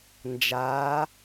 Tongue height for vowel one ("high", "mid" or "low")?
low